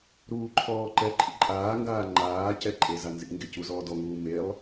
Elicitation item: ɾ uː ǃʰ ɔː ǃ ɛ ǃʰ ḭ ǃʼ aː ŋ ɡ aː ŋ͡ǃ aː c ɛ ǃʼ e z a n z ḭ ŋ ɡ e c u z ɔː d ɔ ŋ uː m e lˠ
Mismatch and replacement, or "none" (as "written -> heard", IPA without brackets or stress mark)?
none